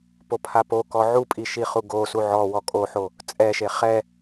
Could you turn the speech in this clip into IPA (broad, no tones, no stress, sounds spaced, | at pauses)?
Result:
p o pʰ a p o k ɔ ʕ u pʼ i ʃ i χ u ɡ o s u ʕ ɔ w ɔ kʼ o ħ o | t͡sʼ ɛ ʃ e χ ɛ